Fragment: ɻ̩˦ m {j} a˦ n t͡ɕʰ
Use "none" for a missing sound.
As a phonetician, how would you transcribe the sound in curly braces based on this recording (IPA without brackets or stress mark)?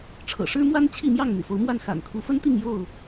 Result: w